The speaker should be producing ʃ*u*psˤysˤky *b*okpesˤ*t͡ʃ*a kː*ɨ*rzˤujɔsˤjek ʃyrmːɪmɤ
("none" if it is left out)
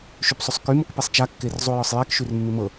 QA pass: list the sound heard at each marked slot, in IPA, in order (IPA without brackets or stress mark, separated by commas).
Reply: y, m, t͡ʃ, e